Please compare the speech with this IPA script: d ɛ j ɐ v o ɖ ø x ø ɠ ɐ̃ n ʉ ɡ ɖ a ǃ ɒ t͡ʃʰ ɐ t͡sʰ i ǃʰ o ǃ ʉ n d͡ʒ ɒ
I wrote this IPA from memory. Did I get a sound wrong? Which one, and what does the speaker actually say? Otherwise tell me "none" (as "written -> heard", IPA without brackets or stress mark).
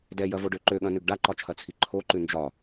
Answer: x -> ǃ